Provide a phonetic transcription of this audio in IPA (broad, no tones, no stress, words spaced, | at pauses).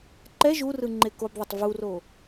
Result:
ǃɛ ʒurɯ ŋ͡ǃekobðˤʏtˤ vuro